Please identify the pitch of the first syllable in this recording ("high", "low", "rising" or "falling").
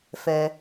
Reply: low